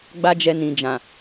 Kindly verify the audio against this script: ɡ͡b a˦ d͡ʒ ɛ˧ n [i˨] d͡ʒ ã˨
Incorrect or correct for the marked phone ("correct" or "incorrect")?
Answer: incorrect